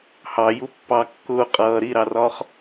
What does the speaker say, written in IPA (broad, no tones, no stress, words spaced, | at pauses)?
hɑju pːɑ kːʊː qʼʌː ɾiɾɑrɒːχ